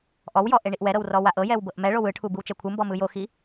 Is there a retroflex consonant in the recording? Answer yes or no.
yes